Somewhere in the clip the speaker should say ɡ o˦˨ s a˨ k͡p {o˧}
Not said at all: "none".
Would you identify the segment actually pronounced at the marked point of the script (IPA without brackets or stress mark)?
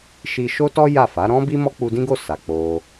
o˧